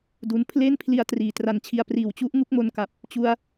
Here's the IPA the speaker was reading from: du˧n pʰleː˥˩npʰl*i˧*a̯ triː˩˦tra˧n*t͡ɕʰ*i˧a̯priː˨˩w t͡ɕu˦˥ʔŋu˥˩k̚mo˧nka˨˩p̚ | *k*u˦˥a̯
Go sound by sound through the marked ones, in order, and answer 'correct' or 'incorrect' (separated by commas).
correct, correct, incorrect